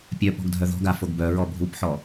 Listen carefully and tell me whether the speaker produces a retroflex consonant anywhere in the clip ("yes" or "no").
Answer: no